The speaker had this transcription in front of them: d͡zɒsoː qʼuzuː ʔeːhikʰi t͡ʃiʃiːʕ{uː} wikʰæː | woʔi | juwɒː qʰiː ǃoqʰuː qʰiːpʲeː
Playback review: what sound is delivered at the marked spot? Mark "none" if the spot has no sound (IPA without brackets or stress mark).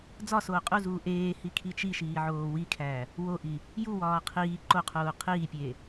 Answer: oː